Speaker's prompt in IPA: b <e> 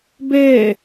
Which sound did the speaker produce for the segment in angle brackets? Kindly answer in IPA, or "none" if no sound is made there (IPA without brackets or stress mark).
e